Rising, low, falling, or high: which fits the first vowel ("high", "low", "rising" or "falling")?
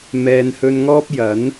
low